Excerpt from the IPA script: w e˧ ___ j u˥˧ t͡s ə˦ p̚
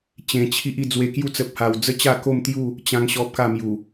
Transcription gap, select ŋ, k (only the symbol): k